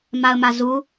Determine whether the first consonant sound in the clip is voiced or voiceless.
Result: voiced